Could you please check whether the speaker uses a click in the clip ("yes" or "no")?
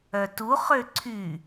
yes